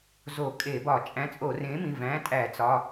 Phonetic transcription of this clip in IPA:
z o˧˩˧ kʼ e˧˩˧ b ɒ˧˩˧ t͡ʃʼ æ̃˨˥ t͡sʼ o˧˩˧ r ẽ˨˥ m ĩ˩˧˩ v æ̃˨˥ tʼ æ˧˩˧ t͡s ɒ˩˧˩

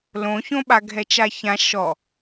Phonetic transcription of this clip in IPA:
l õ ç õ ɓ a ɡʱ ɛ t͡ʃ a ç ã ʃ ɔ

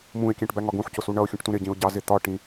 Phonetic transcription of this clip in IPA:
m ũ ɪ̯ kʲ æ̃ ʈ b æ ŋ ɒ ɡ ũ ħ c ʊ s u ɳ ʌ ʊ̯ xʲ ũ ʈ t ũ ɾ ɪ ɟ ĩ ʊ̯ ɟ ɑ z ɪ t̪ ɒ ʈ ĩ

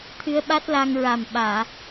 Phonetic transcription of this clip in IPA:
t̪ʰ ɨ˧˥ ə̯ ɓ a˦˥ t̚ l a˧ ŋ ɹ a˨˩ m ɓ aː˨˩˨

